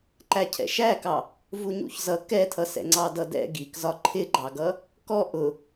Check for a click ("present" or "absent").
present